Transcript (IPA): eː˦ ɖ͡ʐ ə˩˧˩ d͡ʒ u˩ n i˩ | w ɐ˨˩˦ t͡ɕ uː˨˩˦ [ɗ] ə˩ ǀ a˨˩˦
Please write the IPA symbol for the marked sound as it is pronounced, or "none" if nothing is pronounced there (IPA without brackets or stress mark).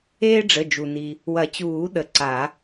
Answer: ɗ